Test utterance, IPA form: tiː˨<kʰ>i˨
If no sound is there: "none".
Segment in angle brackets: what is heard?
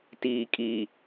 kʼ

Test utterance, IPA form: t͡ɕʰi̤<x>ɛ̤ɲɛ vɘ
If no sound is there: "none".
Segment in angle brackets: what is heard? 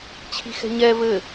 x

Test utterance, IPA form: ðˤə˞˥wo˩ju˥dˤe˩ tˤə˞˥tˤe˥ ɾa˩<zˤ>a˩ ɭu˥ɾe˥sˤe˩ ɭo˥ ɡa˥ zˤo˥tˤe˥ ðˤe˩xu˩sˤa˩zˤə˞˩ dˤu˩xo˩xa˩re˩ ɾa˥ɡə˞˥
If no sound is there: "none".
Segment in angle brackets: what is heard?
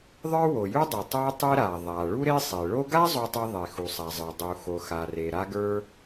ðˤ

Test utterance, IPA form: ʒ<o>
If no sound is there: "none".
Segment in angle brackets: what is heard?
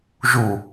u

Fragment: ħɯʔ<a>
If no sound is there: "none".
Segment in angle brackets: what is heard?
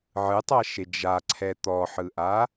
a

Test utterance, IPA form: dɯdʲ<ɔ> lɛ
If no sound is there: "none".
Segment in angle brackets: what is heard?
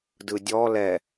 ɔ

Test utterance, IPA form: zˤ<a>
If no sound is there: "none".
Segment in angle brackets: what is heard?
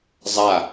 a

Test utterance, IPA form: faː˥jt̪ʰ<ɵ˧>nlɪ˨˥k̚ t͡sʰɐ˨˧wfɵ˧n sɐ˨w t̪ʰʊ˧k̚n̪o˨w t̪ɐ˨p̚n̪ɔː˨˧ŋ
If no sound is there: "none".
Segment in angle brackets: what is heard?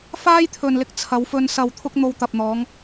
ɵ˨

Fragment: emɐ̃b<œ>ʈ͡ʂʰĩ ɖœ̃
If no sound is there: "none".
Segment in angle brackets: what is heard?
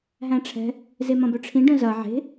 œ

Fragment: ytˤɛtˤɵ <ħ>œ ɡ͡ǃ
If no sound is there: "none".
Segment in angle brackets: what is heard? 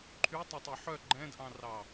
ħ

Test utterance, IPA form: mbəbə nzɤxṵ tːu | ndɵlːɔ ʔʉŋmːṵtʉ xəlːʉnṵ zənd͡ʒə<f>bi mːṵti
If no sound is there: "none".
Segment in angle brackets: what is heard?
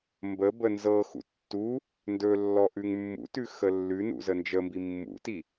m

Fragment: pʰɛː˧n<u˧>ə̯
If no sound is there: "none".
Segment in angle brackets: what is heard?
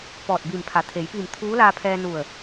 u˧˩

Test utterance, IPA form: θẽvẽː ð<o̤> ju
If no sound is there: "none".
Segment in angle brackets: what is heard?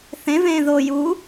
o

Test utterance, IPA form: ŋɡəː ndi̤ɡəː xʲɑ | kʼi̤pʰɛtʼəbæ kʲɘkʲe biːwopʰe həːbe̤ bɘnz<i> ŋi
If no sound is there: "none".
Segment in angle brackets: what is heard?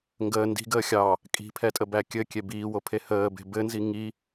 i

